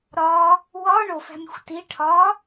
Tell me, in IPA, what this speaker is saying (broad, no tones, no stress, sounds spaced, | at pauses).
ɾ ɒ | w ɒ ɳ o f æ̤ mʲ o̤ xʷ t i ʈʰ ɒ